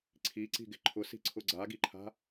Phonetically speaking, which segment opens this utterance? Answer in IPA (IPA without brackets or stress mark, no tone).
ǀʰ